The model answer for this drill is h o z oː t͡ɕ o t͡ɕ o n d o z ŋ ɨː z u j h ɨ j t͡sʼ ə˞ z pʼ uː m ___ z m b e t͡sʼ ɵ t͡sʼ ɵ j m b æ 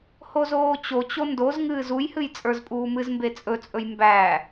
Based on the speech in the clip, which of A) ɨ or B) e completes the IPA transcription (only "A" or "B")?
A